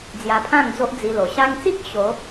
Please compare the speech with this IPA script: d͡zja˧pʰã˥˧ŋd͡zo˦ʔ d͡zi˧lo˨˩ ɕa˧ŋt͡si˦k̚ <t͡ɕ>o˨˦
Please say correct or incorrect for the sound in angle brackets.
incorrect